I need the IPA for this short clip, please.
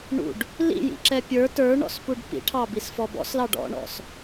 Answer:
ɳṵɖ | lḭjḭǁɛ pʲə˞ tə˞ɳɔ̰spuɖ pḭʈʰɑbisfɔ bɔ̰slɑɖ ɔ̰ɳɔ̰s

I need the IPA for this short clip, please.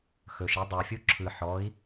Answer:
xɵʃi dˤɯfʲu ǁʰɯ ħɔːi̯

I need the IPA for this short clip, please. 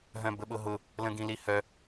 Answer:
ɦœ̃bəɓʊɦʊ | lə̃ɡĩlihœ

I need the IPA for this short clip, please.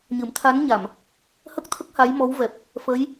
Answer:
ɲɨ˨˩˦mt̪ʰa˧˥nɲa˨˩˨m | hə˦˥k̚t̪ʰə˦˥k̚ ha˧˥jmɔ˧˥wvɛ˨˩p̚ | fə˧˥j

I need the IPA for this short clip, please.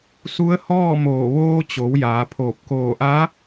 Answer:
su˧˥ə̯hɔː˥˨moː˧˩ ʋoː˧t͡ɕo˩˧w jaː˩˧pʰoː˧˩p̚ koː˧˩ʔa˧˥

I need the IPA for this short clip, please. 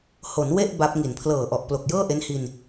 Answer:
ho˩˦nwe˥˩ʔ ba˦˥p̚ ŋi˩˦npʰlɤː˨˩ʔɔ˨˩ʔ plo˨˩k̚jɤː˥˩ʔe˦˥nhi˧n

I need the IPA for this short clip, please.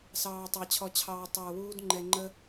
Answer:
sɑː˨tˤɑ˨ t͡ɕʰɔ˨t͡ɕʰɑː˨ tˤəː˨wuː˧d ŋ͡ǃɛ˨ŋ͡ǃə˧

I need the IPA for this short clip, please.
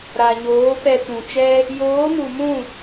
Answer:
ɾa˨ɲoː˨˦ pɛ˧ tũ˨ t͡ʃɛ˦ | joː˨˦mu˨mũ˦˨

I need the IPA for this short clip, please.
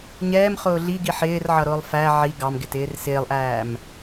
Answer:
ɲɛːmχʊː ɮiɡi ħɪːr ʕʌɾʊːlˠfæ ʕi ɡɑmɡɪt ɪːrsɪːlˠʔæːm

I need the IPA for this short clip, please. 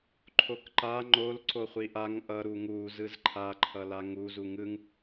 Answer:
ǃʰokǃa ŋ͡ǃol ǀoχʷiʔaŋ ʔʌ ɾuŋu zɯzǃʰa ǃʰʌlaŋu zuŋɯŋ

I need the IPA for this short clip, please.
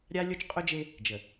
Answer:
ɾʲa˦lʲo˦t͡ʃqʼʊ˦d͡ʒe˦ | d͡ʒə˨

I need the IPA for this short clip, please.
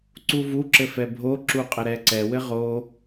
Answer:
ǀuvu ǁɘfɛbʱo ǁuqʼəɾɛǀɛ wɘʁo

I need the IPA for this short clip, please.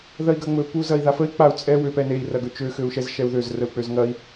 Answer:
ðɐi̯ɡɐŋ͡mɵ puzɐi̯ðafəi̯ k͡pau̯ t͡sʼɛ wøpɛnei̯ rɐɡɵt͡ʃø xøu̯ʃɛzʃɛu̯ðøz rəu̯k͡pøzŋɐi̯

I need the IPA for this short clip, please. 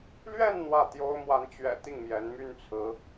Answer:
lɥɛ˥˧n n̪wä˥˩t̪jo˥ʊ̯ mwa˧˥nt͡ɕɥɛ̰˨˩ t̪i˥˩ŋmjɛ˧˥nmy˥n t͡sʰɹ̩˧˥

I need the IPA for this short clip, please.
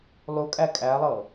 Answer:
lˠukʼæ kʼælˠɤ

